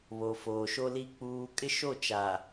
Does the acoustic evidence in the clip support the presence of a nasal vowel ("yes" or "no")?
no